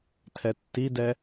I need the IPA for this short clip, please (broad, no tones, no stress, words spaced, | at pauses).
tʰɛtːidɛ